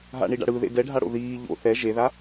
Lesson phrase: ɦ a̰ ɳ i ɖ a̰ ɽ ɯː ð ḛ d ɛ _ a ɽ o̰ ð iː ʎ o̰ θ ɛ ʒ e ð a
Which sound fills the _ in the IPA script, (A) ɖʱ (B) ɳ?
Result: A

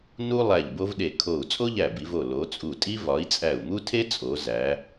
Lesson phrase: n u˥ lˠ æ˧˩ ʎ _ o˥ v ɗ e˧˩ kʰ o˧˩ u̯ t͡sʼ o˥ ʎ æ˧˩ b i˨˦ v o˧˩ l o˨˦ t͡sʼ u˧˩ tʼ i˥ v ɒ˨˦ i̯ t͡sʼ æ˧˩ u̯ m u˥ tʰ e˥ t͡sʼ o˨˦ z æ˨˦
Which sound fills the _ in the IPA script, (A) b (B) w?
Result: A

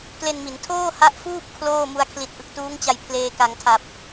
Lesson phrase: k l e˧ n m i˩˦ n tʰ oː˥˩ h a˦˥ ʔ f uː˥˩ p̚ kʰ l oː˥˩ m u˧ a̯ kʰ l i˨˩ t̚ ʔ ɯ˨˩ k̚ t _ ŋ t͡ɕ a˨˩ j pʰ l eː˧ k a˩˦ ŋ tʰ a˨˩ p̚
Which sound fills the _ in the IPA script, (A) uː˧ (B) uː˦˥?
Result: B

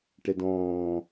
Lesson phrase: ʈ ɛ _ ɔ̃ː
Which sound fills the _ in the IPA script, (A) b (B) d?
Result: B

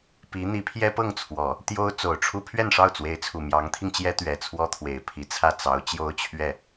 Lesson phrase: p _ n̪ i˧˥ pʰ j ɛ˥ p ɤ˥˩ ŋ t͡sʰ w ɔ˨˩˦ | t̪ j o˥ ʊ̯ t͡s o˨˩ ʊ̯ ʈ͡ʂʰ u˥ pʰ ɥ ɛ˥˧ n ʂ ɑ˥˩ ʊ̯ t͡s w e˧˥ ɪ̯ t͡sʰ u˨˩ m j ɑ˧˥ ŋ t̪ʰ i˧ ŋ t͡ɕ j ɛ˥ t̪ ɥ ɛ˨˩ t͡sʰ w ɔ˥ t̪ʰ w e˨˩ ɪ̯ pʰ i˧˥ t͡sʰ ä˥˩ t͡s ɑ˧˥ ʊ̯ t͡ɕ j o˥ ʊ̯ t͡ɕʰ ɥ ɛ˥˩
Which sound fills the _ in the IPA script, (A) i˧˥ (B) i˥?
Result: A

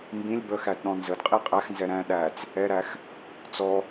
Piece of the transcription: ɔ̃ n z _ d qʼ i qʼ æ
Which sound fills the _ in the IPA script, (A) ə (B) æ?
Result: A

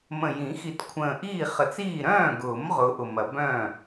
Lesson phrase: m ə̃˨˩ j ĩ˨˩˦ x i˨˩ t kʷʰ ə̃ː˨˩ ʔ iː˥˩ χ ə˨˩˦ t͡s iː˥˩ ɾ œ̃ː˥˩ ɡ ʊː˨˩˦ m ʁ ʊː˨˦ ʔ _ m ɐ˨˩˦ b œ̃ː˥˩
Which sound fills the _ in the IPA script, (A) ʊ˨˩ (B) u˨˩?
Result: A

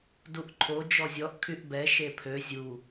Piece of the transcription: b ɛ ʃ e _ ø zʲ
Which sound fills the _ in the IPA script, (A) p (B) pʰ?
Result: B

